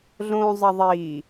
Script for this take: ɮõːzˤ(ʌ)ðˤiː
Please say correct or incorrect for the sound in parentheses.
correct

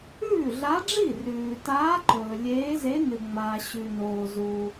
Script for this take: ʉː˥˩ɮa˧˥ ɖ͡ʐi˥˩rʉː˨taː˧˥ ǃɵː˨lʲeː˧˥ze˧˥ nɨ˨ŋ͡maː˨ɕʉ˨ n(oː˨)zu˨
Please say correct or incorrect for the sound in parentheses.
correct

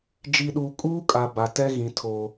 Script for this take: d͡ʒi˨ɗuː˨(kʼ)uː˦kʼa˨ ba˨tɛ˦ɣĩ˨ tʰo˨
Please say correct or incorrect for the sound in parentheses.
correct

